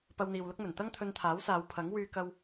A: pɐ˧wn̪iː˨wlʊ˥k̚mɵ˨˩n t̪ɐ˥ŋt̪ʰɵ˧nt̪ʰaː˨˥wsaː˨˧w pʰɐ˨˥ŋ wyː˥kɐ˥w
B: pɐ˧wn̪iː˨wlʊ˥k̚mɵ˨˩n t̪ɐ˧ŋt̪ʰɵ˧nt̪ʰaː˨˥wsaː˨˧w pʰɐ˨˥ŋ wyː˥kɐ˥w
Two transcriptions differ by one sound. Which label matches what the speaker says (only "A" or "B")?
A